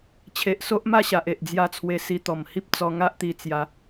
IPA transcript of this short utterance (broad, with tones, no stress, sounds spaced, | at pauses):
t͡ɕʰ e˨ ʔ s o˦ ʔ m a˥˧ ɕ a˨ ʔ e˨ ʔ d͡z j a˥˧ t͡sʰ w e˧ s i˧ t̪ ɔ˨˩ m h i˦ p̚ t͡s ɔ˧ ŋ a˦ ʔ t̪ i˧ t͡s j a˧